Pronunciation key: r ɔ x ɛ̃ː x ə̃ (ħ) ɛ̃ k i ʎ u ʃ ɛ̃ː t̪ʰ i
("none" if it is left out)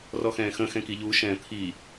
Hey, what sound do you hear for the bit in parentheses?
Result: x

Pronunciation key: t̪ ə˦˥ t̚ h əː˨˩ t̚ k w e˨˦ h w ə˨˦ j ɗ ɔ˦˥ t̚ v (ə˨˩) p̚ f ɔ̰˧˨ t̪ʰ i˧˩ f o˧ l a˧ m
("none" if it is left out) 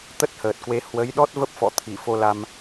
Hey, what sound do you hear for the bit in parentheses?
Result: ə˦˥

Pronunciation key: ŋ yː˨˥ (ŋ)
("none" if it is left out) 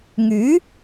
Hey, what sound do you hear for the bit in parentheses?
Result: none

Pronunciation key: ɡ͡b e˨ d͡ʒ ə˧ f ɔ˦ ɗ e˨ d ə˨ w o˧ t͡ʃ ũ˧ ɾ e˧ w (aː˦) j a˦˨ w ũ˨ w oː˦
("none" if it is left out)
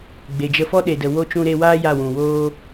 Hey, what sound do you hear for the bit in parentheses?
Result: aː˦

